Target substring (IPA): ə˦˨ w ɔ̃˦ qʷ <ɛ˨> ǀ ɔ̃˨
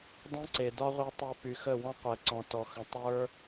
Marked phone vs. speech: correct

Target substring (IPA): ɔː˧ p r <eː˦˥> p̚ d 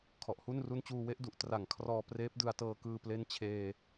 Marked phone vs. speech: correct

